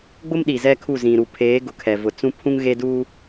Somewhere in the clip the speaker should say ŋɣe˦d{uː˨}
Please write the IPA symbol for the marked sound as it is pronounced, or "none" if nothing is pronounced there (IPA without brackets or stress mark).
uː˦